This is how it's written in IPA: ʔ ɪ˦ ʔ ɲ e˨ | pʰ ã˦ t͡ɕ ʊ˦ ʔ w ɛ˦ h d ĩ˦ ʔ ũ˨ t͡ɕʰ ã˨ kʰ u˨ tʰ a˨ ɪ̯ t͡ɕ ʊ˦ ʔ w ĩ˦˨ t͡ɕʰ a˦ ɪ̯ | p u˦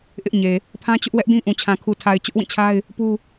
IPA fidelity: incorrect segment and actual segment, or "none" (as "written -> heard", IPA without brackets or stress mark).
h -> ʔ